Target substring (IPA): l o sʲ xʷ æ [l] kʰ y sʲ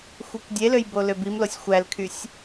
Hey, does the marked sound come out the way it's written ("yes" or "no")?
yes